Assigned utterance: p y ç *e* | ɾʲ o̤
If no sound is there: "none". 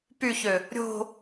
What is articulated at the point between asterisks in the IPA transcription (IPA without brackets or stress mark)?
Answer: ø